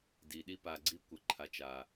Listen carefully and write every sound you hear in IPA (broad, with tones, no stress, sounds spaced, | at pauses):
d i˨ ɗ i˦ p a˨ ɡ͡ǀ i˦ kʷ ə˨ ǃʰ a˨ t͡ʃ a˨